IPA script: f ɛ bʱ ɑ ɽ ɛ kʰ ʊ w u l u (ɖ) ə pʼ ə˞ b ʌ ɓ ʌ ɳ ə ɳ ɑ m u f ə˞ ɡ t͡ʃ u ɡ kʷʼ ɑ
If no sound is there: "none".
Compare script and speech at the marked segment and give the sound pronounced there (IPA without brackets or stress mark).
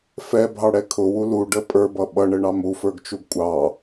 ɖ